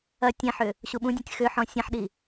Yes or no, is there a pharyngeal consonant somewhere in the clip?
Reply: yes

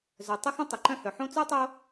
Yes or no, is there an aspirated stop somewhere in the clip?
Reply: no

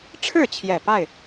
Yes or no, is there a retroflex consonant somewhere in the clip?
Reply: yes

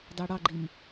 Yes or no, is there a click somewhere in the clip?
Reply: yes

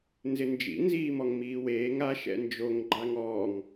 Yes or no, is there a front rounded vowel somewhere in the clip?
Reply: no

